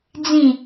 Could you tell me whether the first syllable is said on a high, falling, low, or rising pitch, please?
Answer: low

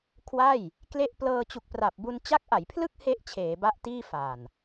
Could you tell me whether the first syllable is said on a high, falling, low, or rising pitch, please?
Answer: falling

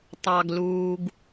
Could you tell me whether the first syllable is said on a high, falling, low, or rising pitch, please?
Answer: low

